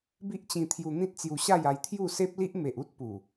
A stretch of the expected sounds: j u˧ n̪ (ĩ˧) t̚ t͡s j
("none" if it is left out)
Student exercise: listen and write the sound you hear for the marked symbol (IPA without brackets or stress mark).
ĩ˦